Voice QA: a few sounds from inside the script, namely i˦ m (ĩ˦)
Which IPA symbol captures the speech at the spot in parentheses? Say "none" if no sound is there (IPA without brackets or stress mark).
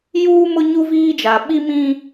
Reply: ĩ˦